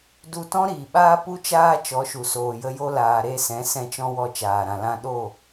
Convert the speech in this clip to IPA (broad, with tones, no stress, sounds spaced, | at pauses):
d u˧ t ɔ̃˦ ɾ iː˨ ɓ aː˦ p u˦ t͡ʃ aː˦ t͡ʃ ɔ˨˦ ʃ u˨ s oː˨ j ə˧ j o˧ l aː˨ ɾ e˦˨ s ɛ̃˨˦ s ɛ̃˧ t͡ʃ ɔ̃˧ w ɔ˧ t͡ʃ aː˨ ɾ ã˨ l ã˧ ɗ o˦˨